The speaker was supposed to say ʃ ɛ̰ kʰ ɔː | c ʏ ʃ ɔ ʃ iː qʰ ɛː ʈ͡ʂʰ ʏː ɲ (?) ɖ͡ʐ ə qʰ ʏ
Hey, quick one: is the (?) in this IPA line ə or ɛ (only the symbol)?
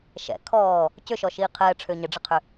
ə